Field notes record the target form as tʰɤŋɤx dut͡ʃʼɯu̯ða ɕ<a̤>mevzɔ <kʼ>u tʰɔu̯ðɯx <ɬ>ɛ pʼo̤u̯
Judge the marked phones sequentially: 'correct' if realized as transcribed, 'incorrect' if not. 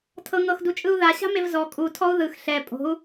correct, correct, correct

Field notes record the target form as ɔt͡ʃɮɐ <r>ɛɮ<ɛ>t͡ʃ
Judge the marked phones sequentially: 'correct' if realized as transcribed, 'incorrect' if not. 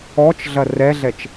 correct, correct

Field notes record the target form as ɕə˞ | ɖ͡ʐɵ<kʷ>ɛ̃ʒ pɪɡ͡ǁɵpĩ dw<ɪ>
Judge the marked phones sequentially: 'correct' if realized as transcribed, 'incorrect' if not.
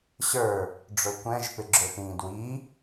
correct, incorrect: i

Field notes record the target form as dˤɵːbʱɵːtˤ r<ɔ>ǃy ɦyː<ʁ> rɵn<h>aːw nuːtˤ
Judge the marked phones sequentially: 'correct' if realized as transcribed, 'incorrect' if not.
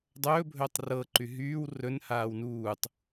incorrect: ɤ, incorrect: w, correct

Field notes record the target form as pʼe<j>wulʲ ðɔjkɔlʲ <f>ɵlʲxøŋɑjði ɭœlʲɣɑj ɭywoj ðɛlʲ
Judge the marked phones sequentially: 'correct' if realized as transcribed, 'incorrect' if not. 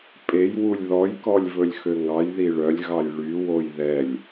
correct, incorrect: v

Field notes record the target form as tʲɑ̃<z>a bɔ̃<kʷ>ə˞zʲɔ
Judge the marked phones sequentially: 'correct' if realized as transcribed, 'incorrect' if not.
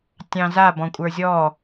correct, incorrect: kʷʼ

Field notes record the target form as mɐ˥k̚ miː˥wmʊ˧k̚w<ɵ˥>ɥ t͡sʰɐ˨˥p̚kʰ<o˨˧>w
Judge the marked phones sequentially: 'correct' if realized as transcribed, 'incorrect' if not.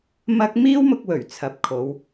incorrect: ɵ˨˩, correct

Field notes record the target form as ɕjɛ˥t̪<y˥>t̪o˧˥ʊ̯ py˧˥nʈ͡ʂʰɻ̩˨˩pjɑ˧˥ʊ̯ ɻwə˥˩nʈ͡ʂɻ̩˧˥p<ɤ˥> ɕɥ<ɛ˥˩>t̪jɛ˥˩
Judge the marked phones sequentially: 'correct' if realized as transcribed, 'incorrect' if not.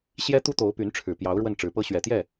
incorrect: u˥, correct, incorrect: ɛ˨˩

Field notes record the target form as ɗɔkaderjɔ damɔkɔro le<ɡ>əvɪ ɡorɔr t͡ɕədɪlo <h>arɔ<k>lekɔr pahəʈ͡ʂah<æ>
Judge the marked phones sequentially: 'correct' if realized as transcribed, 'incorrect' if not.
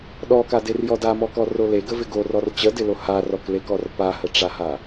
correct, correct, correct, incorrect: a

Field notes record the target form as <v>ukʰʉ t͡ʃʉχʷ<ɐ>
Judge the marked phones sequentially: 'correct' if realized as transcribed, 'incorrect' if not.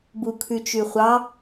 incorrect: b, incorrect: ɑ

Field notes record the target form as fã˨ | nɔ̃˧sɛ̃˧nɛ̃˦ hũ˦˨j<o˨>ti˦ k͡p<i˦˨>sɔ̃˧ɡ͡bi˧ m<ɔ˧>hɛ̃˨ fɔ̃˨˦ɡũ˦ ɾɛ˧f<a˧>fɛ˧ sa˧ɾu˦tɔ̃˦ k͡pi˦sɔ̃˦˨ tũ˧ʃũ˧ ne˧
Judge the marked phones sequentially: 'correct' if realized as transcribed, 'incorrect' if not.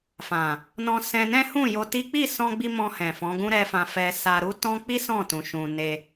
incorrect: o˧, correct, incorrect: ɔ̃˧, incorrect: ã˧

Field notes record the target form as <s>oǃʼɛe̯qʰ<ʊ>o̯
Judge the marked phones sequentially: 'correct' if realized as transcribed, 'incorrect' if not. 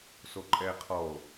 correct, incorrect: ɔ

